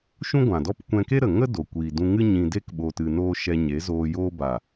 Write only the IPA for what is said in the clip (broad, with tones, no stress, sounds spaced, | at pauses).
ʃ ũ˦ ɡʷ ã˨ d ɔ˦ p kʷ ɛ̃˧ k e˦ ɾ ə˨ ŋ ə˦ d o˨ kʷ iː˨ d ũ˧ ŋ ɨ˦ ɲ ĩ˧ d e˦ k ɓ o˧ t ɨ˧ n oː˦ ʃ ɛ˧ ɲ e˨˦ z oː˧ j oː˧ b a˨